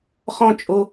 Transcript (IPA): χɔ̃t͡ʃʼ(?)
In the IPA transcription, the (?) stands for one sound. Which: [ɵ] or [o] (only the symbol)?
o